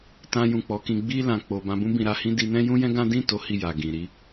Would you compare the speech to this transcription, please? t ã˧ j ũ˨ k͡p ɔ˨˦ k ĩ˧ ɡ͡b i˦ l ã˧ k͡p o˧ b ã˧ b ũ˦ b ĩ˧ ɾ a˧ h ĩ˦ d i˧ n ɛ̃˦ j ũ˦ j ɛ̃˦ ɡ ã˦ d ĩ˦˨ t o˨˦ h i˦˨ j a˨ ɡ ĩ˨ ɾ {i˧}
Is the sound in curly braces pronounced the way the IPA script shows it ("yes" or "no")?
no